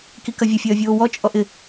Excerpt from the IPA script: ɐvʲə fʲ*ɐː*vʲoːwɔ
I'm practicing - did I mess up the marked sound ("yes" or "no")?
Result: no